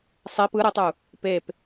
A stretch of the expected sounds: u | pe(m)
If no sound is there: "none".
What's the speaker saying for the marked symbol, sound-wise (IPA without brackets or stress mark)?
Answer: p